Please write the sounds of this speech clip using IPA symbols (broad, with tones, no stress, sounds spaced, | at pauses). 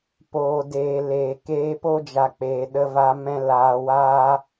p oː˨ d eː˨ l eː˨ k eː˧ p o˦ d͡ʒ a˨ k͡p eː˨ ɗ ə˧ v a˧ m ɛ̃˧ l aː˨ w aː˧